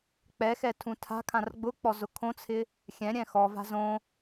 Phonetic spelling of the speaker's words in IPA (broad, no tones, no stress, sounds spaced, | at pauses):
k͡p ɛ x ɛ tʰ ũ tʰ a̤ kʰ ã r ɡ͡b ʊ k͡p ɔ z ʊ kʰ õ t͡sʰ ɪ | xʲ ɛ̃ ɾʲ ɛ̃ x ɔ v a̤ z õ